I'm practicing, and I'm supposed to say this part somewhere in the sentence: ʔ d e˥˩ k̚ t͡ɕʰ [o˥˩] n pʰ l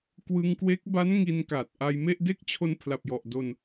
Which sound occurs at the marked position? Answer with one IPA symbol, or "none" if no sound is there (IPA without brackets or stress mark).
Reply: o˧